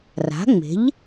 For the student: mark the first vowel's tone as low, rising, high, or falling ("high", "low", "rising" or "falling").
rising